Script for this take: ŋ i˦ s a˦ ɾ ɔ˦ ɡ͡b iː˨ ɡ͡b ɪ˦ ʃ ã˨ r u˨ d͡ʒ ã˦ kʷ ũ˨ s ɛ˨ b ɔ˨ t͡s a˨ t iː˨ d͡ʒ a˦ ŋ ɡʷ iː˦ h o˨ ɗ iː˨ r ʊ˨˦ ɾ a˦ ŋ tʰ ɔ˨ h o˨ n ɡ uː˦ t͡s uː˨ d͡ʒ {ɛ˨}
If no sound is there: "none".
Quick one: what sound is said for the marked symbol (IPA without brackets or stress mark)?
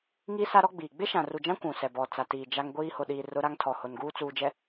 ɛ˨